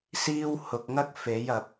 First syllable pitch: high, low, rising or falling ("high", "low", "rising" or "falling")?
high